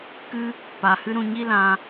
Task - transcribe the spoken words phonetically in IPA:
k ɨ˦ | p a˨ h ɨ˦ ɾ ũ˧ ɲ i˦ l ã˧

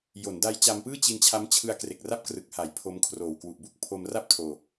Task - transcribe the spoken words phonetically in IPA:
j o˩˦ n d a˦˥ j t͡ɕ a˧ m p ɯː˥˩ t͡ɕ i˧ n t͡ɕʰ a˦˥ m t͡ɕʰ ɯ˧ a̯ k r e˨˩ k̚ r a˥˩ p̚ k r ɯ˨˩ k̚ h a˩˦ j pʰ o˦˥ m kʰ r oː˨˩ w k w u˨˩ ʔ b u˥˩ k̚ pʰ o˧ m r a˥˩ p̚ tʰ oː˧

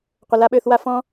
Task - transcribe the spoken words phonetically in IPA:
qʷ ə˨ l a˦ ɓ ø˧ θ w a˦ f ɔ̃˦

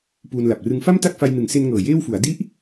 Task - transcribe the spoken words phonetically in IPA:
p uː˧ n l a˨˩ p̚ r ɯ˦˥ ŋ f a˥˩ m t a˥˩ k̚ f a˧ j n ɯ˩˦ ŋ s e˧ n ŋ ɤː˨˩ j eː˥˩ w f u˩˦ a̯ d i˦˥ ʔ

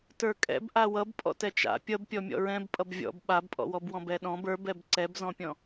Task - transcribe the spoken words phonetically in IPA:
t ə˞ kʼ ɛ̰ b ʔ a w ʌ b pʼ ɔ̰ t ɛ t͡ʃ a̰ pʲ ʌ b pʲ ɔ mʲ ɔ̰ ɹ ɛ̃ b pʼ ʌ b vʲ ɔ̰ b ɓ a b pʼ ɔ̰ w ɔ b w ɔ̃ b ɛ ɗ ɔ̃ b ə˞ b ɛ b ǀ ɛ b z ɔ̃ pʲ ɔ̃

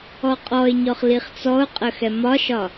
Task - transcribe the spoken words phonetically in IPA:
ɔ qʼ ɔ ɪ̯ ɲ ɔ χ l i χ t͡s ɔ ʊ̯ qʼ ə x ɛ m ɒ ʃ ɒ

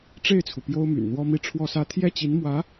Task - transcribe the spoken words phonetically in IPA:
ʈ͡ʂ e˥˩ ɪ̯ t͡sʰ u˩ p j o˥ ʊ̯ m y̰˨˩ n n̪ w ɔ˥ m i˥˩ ʈ͡ʂʰ w ɔ˥ s ä˥ t̪ʰ j ɛ˥˩ t͡ɕ i˧˥ n m w ä˧˥

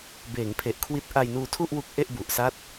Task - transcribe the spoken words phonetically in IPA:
b eː˩˦ ŋ pʰ e˨˩ ʔ kʰ w i˦˥ t̚ ʔ a˧ j n uː˧ tʰ u˥˩ ʔ w u˦˥ k̚ ʔ e˥˩ ʔ b u˨˩ ʔ s a˦˥ t̚

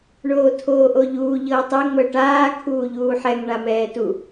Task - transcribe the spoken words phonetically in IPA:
ɳ oː tʰ oː ʔ o ʎ uː ʎ ɤː tˤ ɛ ŋ͡m ɤ ʈ aː kʰ uː ʎ uː ħ ɛ ŋ ɳ a m ɛː t u

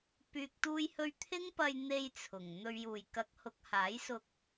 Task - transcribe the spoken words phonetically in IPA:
p yː˨ k̚ t̪ uː˧ j h ɵ˧ ɥ t̪ʰ ɪ˥ ŋ p ɐ˧ j n̪ e˧ j t͡sʰ ʊ˨˩ ŋ n̪ ɵ˨ ɥ j uː˨˩ j k ɐ˨˥ k̚ h ʊ˨˥ k̚ h aː˨˥ j s ʊ˧ k̚

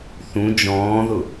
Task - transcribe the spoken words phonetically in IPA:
θ ũ d͡ʒ ɔ̃ː ð ʊ

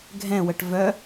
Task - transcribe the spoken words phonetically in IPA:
ɡʱ ɛ̃ w ə ʈ v œ

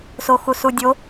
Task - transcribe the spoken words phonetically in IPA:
s o x u s u dʲ o

